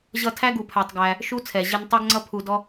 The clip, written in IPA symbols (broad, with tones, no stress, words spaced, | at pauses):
ʑʌ˧tʰæ˦ ɡu˧pʰæ˧tˤɡæ˧ | ʃu˦t͡sʰɛ˨ ʑɪ˧n tˤe˦ɡŋ͡ǀʌ˦ pʰu˧dɔ˦